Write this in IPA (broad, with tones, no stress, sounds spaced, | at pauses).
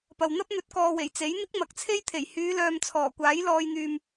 p ɐ˨ w n̪ ɐ˥ p̚ n̪ ɵ˨˥ t̚ k ɔː˨ w e˨˩ j t͡s e˨˥ j n̪ ɪ˥ k̚ m ɐ˨˥ k̚ t͡sʰ e˥ j t̪ʰ e˨˩ j h yː˨˧ l œː˨ m t͡sʰ ɔː˨˩ kʷ aː˨˥ j l ɔː˧ j n̪ yː˨ m